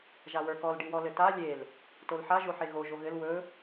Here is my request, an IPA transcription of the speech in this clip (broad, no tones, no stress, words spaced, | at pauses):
ʒawə˞kɔl ɖiwɔlɘta lʲel | tolħa ʒoħeɣo ʒoɣɘl wɵ